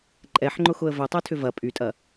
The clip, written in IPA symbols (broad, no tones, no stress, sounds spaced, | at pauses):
ǃʼ ɛ ħ ŋ͡ǃ ʊ x ʊ ə̯ v ʏ tˤ ø tʰ ʏ v ɐ pʼ y tʼ ɐ